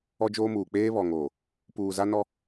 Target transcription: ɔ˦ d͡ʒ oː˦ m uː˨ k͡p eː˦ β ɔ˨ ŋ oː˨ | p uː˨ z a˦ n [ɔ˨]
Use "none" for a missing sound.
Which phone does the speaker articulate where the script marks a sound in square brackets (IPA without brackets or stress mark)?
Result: ɔ˦